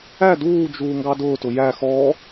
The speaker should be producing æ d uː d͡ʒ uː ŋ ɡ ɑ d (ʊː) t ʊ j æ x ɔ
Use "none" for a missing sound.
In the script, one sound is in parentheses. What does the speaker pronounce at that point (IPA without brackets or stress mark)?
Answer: ʊː